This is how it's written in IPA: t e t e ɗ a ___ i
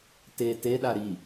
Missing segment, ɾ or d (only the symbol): ɾ